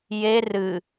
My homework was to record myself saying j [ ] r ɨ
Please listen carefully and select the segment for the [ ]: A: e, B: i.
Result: A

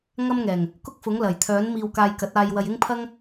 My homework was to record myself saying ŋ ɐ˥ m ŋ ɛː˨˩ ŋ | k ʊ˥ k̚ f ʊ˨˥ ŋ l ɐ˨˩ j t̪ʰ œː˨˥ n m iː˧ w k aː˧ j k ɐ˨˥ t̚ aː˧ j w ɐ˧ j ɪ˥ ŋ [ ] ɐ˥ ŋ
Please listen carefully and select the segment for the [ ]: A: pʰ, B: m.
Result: A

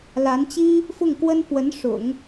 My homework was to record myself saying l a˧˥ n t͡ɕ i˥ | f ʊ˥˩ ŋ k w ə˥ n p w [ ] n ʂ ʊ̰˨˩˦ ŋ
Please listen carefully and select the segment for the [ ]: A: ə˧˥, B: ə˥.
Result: A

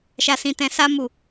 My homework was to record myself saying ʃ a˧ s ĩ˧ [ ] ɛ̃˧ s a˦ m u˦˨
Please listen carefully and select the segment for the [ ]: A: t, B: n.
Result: A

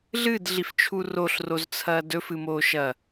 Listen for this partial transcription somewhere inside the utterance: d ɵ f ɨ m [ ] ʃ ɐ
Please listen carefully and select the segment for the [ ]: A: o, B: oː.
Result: B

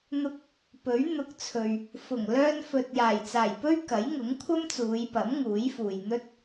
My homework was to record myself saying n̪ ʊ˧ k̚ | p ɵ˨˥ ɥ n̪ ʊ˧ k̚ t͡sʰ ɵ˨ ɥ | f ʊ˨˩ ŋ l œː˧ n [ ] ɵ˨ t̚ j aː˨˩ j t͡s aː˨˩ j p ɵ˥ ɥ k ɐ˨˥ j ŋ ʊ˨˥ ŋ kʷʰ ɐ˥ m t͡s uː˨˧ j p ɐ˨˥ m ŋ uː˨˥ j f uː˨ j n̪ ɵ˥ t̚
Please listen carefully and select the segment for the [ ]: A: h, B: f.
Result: B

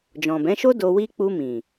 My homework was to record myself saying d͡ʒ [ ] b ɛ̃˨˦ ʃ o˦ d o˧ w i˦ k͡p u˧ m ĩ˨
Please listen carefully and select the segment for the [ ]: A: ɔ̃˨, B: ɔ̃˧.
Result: A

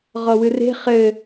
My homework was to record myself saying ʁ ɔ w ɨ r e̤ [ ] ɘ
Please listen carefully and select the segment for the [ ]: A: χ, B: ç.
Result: A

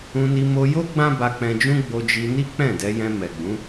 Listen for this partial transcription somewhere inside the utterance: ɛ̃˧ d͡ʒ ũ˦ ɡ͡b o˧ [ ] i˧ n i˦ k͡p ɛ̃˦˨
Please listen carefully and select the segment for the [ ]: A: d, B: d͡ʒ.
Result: B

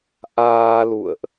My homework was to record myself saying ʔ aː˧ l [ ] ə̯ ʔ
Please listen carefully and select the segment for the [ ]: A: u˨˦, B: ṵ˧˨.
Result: B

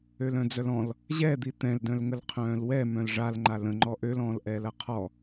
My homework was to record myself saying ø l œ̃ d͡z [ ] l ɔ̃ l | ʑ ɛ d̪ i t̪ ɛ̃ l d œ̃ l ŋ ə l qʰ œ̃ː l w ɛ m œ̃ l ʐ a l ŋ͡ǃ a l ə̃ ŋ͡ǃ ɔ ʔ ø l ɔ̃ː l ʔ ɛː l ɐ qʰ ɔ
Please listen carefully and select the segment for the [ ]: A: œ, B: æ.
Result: A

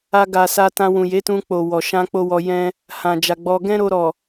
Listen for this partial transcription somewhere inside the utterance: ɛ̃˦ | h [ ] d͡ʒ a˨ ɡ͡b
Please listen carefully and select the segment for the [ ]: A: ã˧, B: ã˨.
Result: B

